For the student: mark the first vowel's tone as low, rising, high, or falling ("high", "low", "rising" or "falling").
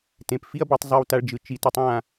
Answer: low